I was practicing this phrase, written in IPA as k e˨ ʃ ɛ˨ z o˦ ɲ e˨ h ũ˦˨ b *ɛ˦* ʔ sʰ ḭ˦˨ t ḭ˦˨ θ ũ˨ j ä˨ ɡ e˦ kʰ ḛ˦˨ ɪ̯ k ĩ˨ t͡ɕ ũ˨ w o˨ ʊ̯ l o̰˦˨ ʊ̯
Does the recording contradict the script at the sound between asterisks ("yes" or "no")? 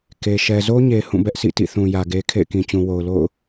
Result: no